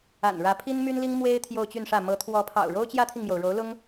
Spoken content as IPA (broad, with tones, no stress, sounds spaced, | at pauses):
a̰˨˩ n ɻ ä˧˥ pʰ i˥ n m y˥ n l i˥ ŋ m w e˥ ɪ̯ t̪ʰ j o˥˧ ʊ̯ t͡ɕ y˥˧ n ʂ ä˥˩ m ɤ˧˥ t̪ʰ w ɔ˧˥ pʰ ɑ̰˨˩ ʊ̯ ɻ o˥ ʊ̯ t͡ɕ j ä˥ t̪ʰ i˨ ŋ m j o˩ ʊ̯ ɻ o˧˥ ʊ̯ l ʊ˥ ŋ